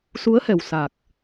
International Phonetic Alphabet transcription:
su˧˥ə̯hɛ˨˩wsa˨˩k̚

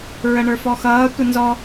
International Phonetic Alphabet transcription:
ɹəɳə˞fɔxʌː tʷənzɔ

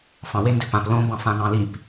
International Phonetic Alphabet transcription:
fɑ̃ wendøpãp lõbɑ̃fã ŋɑ̃lip

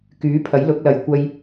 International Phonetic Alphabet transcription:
kyː˨˥pʰɐ˨˥j lʊ˨˥k̚lɐ˨j kʷɐ˧j

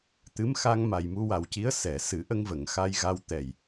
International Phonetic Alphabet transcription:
t̪ɨ˧˥mxa˧ŋ ma˨˩jmu˧wa˨˩wci˧˥ə̯ sɛ˨˩˨ sɨ˨˩˦ ʔə˧ŋvə˨˩˨ŋ xa˧jɣa˧w t̪ɛ˨˩j

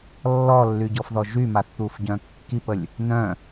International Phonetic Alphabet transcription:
lːɔlːyɟɔfðɔ ʒymaθt̪ufɟœ̃ kːipəlʲ | nœ̃

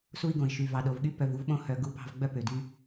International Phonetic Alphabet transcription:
su˦i̯ɡõ˩i̯ʃy˩ vɑ˩ɗo˩vɠy˥ pœ˨vu˥vɓõ˦ hœ˨ɡu˦ pɑ̤˦vɡ͡bœ˥pø˩ dy˦

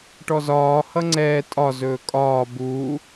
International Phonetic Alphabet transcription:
ʈɔzɒː hʌŋ͡ǀɛː tʼɒ zɵːkʼɒː buː

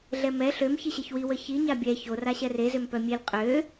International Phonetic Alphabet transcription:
ɮɛmɛ ɬøm çiɕeçwi wəçi ɲabʲɛ ço raɕɛre zømpœmʲel qʼø

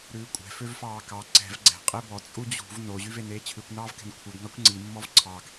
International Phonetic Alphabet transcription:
ɾʉːkʷʼɛ̤ føvfɑːkɑ ǀɛ̤v ɡ͡ǀɛ̤ qʼebɔ t͡sʼud͡ʑṳv no ʑyveneːt͡ɕʰʉkʷ nɑːvkɛ̤nkʷʰeɡ ŋɑkʷŋ͡ǀi mːɔvǀʰɑɡ

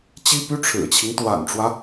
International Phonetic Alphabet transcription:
t͡ɕi˥py˥ ʈ͡ʂʰɻ̩˨˩t͡ɕʰi˦ŋt̪wa̰˨˩nʈ͡ʂwä˦

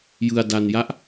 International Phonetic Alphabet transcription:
jɯ˧a̯da˧nja˦˥ʔ

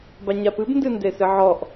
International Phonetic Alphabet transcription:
baɲapɨb ndɨndesɨʕɔʔ

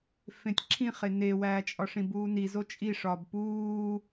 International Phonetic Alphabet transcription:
fẽtʲǁʰĩχe newæːt͡ʃʼɒʂĩ buːnizo t͡ʃʼiʂɒːb puː

